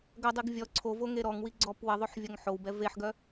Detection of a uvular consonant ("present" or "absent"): absent